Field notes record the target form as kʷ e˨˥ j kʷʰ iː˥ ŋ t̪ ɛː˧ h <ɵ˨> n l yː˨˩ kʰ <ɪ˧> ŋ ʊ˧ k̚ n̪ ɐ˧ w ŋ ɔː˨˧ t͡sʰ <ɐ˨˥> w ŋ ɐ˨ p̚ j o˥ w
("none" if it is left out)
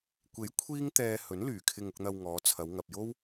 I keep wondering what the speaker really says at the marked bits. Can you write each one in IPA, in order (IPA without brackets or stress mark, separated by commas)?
ɵ˨˥, ɪ˧, ɐ˨˧